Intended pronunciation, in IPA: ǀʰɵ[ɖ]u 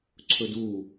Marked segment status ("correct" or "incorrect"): incorrect